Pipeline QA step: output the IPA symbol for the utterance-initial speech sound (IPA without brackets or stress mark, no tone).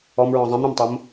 ɔ